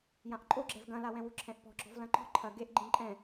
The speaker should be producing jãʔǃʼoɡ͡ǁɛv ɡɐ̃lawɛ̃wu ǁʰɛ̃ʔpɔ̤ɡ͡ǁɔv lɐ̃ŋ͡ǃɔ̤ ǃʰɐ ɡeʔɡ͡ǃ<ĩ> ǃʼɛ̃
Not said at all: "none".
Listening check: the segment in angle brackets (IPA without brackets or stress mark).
ĩ